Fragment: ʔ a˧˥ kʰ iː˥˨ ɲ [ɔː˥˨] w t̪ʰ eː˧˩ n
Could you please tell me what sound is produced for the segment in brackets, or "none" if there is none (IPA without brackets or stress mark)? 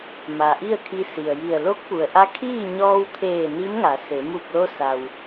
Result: ɔː˧